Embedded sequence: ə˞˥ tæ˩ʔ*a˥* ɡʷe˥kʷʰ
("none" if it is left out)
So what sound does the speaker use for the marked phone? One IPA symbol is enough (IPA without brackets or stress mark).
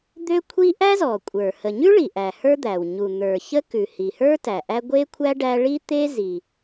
æ˥